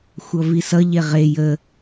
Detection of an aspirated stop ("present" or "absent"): absent